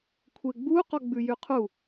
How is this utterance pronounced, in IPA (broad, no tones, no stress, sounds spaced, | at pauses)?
kʷʰ e ɡ͡b u q ɔ ɡ͡b ʉ j y qʰ u